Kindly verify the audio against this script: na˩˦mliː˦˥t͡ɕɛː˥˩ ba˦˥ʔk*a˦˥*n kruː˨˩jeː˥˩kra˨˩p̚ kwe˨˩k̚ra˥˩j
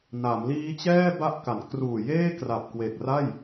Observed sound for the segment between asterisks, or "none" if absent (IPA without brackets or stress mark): a˩˦